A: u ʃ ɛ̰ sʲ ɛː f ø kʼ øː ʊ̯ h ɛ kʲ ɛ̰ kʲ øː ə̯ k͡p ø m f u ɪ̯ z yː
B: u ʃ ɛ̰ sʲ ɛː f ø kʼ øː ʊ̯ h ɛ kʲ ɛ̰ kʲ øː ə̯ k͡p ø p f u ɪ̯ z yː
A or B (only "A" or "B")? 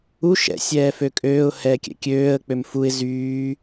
A